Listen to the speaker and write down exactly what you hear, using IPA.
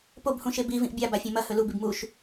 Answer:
p o b h ũ ʃ e b i v ĩ ʔ bʲ a b a fʲ ẽ m ɐ h ɵ l u b i b m u ʃ

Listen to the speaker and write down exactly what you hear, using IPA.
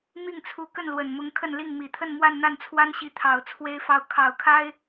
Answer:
m i˥˩ ŋ t͡sʰ u˧˥ k ə˥˩ n l w ə˨˩ n m ʊ˧˥ ŋ kʰ ə˥˧ n l i˥˩ ŋ m i˨˩ t̪ʰ ə˥˧ n m w a˥˧ n n̪ a˥˩ n t͡sʰ w a˥ n ɕ i˧˥ t̪ʰ ɑ˨˩ ʊ̯ t͡sʰ w e˥ ɪ̯ f ɑ˥˩ ʊ̯ kʰ ɑ˨˩ ʊ̯ kʰ a˥ ɪ̯

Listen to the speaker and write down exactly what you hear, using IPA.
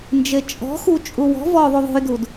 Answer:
n d͡ʒ e t͡ʃʼ ɔ̤ x u t͡ʃʼ u w ɔ̤ v ɔ ðˤ u ðˤ o̤ j d u d

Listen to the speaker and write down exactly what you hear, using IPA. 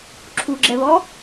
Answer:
ǁʰ u ɡ͡ǁ ɛ β ɔ

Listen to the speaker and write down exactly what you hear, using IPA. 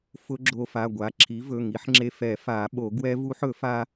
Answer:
f ʊ˦˥ ɡ͡ǁ o˧ f a˩˧˩ ɡʷ a˩˥ ǁʰ i˩˥ v ɵ˩˧˩ ŋ i˩˥ ħ ŋ͡ǁ e˧ f ɛ˨˩˦ f a˨˩˦ ɓ o˨˩˦ ɡ w ɛ˦˥ v u˦˥ ħ ɵ˨˩˦ f a˧

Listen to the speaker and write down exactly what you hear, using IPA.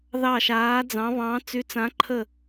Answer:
ð ɑ˦˨ ʃ aː˧˥ d͡z ɑ̃˧˥ β ɑ̃˧˥ t͡s y˧˥ t͡s ã˧˥ ǃʰ ə˦˨

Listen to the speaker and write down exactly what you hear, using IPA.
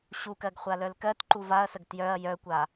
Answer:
ɕ u k ɜ ɡ χʷ a l œ l k ɜ t ǃ u v a ɐ̯ s ə ɡ t j œ ɐ̯ j œ kʷ a

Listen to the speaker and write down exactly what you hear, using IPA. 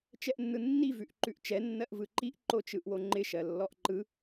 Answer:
t͡ʃ ɛ ʔ nː ɯ nː i v ʉ ʔ ǃ ʉ ʔ t͡ʃ ɛ nː ɜ ʔ v ɯ ǃ i ʔ ǃ o t͡ʃ ɯ ʔ w o ŋ͡ǃ ɪ ʃ ɜ lː ɔ ʔ ǃ ɯ

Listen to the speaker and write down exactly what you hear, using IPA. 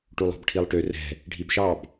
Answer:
ʈ u lˠ ɔ̤ b ʈʰ i lˠ ʈ ø r ɛ̤ | ɖʱ i b ʃ ɑ b

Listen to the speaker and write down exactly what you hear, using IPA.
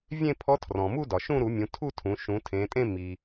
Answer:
vʲ ẽ˥˧ pʰ ɔ˧˥ tʰ r ɔ̃˩ m u˥˧ d ɒ˩ ʃ ũ˥˧ ɾ u˧˩˧ mʲ ũ˩˧ tʰ u˥˧ tʰ ũ˩˧ ʃ ũ˩˧ tʰ ẽ˩˧ tʼ ẽ˥˧ m i˩

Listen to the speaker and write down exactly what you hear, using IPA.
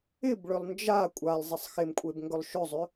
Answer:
ɪ b ɭ ʏ lˠ n d͡ʒ a kʷʼ a lˠ zˤ ɪ sˤ x ɪ m kʷʼ e b ŋ ɡ ɵ lˠ ʃ ɵ zˤ ʏ

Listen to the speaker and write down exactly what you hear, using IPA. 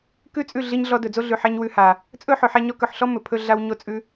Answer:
k ʉ˦ t͡sʼ ʉ˦˨ ɮ i˧ ɲ ɮ ɔ˧ d ɵ˨ d͡z o˦ ɮ ʉ˨ ħ ɛ˧ ɲ w ʉ˧ h a˨ | t͡sʼ ɵ˦ ħ ɵ˨ ħ ɛ˧ ɲ ɔ˧ k ɵ˨ ħ ɬ ɔ˦ m ɵ˨ pʰ ɵ˧ ɮ a˧ w ɲ o˧ t͡sʼ ʉ˧

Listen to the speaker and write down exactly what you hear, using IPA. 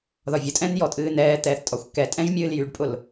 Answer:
ð ɒ vʲ ʊ tʼ ɛ̃ n j ɔ tʼ ɨː n ɛː t̪ ɛː θ tʼ ɒ xʷ k ɛ tʼ ɛ̃ ʒ mʲ ɨː l j y ɖ pʼ ʊ l

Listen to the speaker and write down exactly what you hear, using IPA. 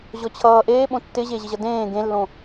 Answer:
ʑ ɔ t͡ɕʰ ʌː ʔ eː ɓ õ tː ɪː ʑ eː ʑ ɪ ʑ ʌ d ẽː ɡ ẽ lː õ

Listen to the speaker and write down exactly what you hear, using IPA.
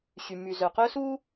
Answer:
ɕ y˨ m y˨ z œ˨ q œ˦ s uː˦

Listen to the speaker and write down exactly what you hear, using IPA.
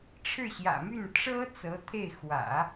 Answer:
ʈ͡ʂʰ ɻ̩˥˩ ɕ j ä̰˨˩ m y˥˩ n ʈ͡ʂ ɤ˥ t͡s ɤ˧˥ t̪ʰ e˥˩ ɪ̯ x w ä̰˨˩˦

